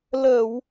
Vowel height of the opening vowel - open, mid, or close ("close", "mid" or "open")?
mid